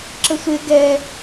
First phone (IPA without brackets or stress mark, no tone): ǁ